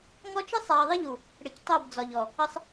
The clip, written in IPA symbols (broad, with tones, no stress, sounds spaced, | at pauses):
ŋ ɔ˦ t͡ʃ ɪ˦ sˤ a˨ ɐ̯ ðˤ ɪ˦ ʎ u˨ | ɽ ɪ˨ c tˤ o˦˨ b d͡z ɒ˨ ʎ ɔ˨ | ə˦ sˤ